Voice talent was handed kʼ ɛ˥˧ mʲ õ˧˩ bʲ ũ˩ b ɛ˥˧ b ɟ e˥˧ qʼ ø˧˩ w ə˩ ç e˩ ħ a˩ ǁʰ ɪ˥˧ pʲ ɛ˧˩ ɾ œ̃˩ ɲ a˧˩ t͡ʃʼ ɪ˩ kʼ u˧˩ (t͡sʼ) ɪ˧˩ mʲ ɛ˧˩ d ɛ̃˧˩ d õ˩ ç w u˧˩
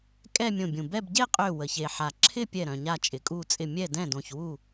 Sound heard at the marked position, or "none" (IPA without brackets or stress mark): t͡sʼ